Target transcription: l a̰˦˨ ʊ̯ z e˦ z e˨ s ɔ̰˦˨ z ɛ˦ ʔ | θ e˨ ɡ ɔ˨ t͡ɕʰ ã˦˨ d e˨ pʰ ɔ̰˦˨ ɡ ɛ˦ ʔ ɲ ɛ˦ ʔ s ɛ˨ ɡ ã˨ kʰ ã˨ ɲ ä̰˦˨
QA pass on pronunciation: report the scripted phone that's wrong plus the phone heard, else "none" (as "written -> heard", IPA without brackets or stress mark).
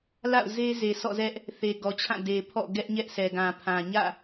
kʰ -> pʰ